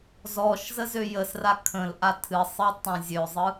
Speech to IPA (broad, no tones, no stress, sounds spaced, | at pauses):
z ɔ ʃ z ə z ø j ə s r a kʰ ə̃ l ʔ a tʰ ɨ sˤ ɯ tˤ õ zʲ ø zˤ ɯ